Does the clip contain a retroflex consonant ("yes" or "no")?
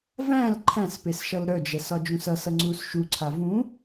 no